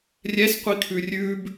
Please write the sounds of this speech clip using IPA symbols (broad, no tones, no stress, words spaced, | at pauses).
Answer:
rʲɛsqʷikʰʉ rʲʉb